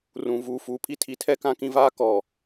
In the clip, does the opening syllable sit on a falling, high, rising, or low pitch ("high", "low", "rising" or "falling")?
low